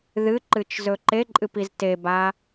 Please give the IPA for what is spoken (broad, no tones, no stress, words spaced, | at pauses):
ðɨǃɨt͡ʃzɵ ǃeǃʼɨpiz teba